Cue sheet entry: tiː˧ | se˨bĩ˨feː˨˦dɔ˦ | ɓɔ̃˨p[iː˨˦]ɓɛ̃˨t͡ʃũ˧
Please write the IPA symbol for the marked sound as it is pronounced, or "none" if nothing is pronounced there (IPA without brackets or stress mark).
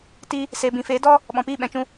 iː˦˨